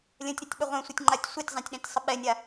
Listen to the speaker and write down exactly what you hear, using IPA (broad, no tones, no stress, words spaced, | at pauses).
lʲə̃tʲɾətʲɓə ʁʷɛ̃sʷɛtʲŋ͡ǃatʲ sʷetʲzˤãtʲɗɛ̃tʲsˤə ɓɛnʲa